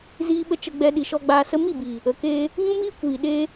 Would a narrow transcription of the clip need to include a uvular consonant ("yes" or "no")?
no